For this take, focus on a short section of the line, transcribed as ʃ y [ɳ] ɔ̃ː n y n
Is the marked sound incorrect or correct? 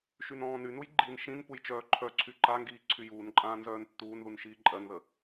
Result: incorrect